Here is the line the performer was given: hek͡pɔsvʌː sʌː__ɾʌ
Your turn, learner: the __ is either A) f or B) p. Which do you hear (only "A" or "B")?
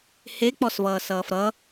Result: A